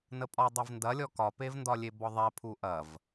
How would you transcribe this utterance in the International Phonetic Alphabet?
n ə pʼ ɒ dˤ ɛ v n d ɐ lʲ ɔ k ɒ p e v n d ɒ lʲ e b ɔ ðˤ ɛ pʰ u ʔ ɐ v

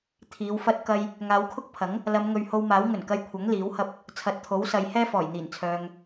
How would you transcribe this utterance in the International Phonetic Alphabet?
t̪ʰ iː˨˧ w f ɐ˥ t̚ k ɐ˧ j | ŋ aː˨˧ w kʰ ʊ˥ k̚ pʰ ɐ˨˥ ŋ | l ɐ˨˧ m ŋ ɵ˨ ɥ h o˧ w m aː˨˥ w ŋ ɵ˨˩ n k ɐ˧ j kʷʰ ɐ˨˥ ŋ l iː˨˥ w h ɐ˥ p̚ | t͡sʰ ɐ˨ t̚ t̪ʰ o˨˥ w s ɐ˨ j h ɛː˥ f ɔː˨˩ j n̪ iː˨˩ n t͡sʰ œː˨ ŋ

